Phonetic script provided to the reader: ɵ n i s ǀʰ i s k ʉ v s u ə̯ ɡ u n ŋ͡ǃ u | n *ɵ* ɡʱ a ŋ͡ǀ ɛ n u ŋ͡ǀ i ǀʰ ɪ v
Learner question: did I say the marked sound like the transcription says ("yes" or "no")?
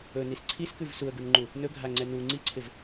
yes